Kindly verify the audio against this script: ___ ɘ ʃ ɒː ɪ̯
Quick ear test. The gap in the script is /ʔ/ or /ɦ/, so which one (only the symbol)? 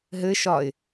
ɦ